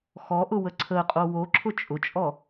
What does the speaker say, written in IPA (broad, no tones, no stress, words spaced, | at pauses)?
xɔʔʊwə ǀʰəqʼo woǁʰʊ t͡ʃʼʊt͡ʃʼɔ